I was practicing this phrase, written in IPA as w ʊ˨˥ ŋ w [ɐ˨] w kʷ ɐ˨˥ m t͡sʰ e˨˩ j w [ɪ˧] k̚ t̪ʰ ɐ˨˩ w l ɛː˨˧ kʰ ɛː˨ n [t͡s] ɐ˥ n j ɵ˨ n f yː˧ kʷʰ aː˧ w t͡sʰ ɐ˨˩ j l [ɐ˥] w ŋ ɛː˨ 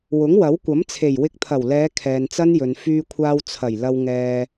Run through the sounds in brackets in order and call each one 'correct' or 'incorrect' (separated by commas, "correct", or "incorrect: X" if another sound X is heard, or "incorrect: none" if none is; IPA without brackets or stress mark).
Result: incorrect: ɐ˨˥, correct, correct, incorrect: ɐ˨